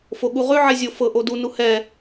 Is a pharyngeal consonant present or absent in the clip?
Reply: present